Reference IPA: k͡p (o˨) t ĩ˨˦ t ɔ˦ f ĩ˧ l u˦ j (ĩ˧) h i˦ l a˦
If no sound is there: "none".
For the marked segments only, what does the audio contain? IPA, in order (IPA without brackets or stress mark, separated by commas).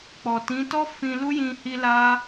ɔ˨, ĩ˧